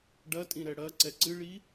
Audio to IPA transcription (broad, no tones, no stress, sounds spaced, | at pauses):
ɖ ɐ tʼ ĩ ɾ ɛ ɽ ɐ ǀ ɛ ǀ ɨ ɭ i